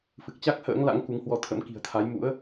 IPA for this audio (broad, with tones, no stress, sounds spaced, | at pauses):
f ɨ˨˩ k̚ t͡ɕ a˦˥ k̚ h ə̰ː˧˥ ŋ l a̰˧˥ ŋ k u˨˦ ŋ h w ɔ˧ t̪ʰ ə̰˧˥ m k i̤˨˩ ə̯ t̪ʰ a˨˦ j m ṵ˧˥ ə̯